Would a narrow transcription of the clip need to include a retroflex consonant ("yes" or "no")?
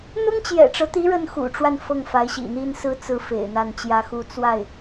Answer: yes